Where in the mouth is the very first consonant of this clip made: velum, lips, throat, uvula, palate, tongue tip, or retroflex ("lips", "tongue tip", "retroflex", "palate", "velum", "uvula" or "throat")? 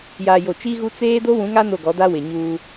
palate